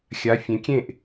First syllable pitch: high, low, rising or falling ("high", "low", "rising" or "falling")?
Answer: rising